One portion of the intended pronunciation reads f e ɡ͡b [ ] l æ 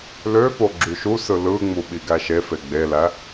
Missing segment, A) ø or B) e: B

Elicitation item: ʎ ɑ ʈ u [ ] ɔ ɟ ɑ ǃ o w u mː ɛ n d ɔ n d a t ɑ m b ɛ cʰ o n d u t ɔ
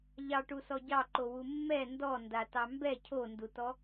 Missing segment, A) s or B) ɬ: A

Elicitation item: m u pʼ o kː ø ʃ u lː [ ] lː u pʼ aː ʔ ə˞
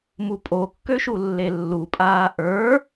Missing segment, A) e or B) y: A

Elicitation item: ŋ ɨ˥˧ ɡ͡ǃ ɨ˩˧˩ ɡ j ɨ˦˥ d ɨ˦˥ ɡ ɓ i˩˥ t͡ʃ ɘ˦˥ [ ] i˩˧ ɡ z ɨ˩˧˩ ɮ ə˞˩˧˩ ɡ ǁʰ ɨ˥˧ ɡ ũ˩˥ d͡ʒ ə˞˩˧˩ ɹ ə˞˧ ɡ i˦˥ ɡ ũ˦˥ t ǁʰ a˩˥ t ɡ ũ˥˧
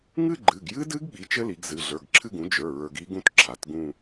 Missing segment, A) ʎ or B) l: B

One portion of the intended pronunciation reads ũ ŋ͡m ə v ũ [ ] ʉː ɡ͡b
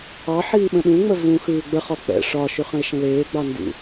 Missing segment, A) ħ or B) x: B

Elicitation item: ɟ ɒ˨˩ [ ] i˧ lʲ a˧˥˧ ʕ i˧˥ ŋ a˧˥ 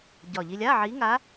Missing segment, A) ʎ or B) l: A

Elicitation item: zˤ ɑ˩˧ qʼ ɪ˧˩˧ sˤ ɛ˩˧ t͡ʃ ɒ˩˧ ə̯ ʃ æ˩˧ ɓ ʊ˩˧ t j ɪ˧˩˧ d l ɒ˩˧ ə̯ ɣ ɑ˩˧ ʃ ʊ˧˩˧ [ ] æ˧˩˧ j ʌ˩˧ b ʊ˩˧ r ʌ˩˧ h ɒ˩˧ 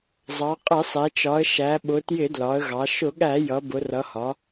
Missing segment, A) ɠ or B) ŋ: A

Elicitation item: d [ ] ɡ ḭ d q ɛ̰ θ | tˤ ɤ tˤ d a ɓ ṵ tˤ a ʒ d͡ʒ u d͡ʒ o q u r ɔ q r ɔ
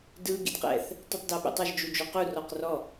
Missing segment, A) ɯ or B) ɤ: A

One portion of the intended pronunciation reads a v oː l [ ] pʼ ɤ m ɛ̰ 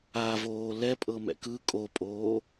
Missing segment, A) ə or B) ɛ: B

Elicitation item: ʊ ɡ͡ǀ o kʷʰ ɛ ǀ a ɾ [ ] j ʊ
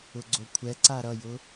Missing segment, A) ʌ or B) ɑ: A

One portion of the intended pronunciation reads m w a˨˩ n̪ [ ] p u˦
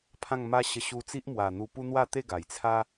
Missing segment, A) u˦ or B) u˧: B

